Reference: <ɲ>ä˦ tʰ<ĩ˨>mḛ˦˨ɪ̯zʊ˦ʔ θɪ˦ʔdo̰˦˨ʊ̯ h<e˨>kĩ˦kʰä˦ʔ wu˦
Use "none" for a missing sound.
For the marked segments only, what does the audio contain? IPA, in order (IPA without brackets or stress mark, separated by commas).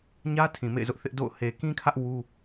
ɲ, ĩ˨, e˨